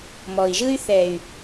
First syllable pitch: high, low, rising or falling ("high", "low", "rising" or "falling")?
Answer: low